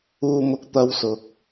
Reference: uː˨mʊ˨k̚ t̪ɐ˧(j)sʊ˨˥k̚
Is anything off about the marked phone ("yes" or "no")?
yes